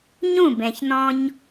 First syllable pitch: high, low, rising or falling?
falling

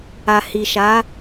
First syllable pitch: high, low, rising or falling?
low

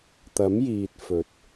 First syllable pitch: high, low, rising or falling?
rising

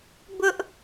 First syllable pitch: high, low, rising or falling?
high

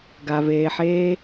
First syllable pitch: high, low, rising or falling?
low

